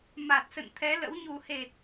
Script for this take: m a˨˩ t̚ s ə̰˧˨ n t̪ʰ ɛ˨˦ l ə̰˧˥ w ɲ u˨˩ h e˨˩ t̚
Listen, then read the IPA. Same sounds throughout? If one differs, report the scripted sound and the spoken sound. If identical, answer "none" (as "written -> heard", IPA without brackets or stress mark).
none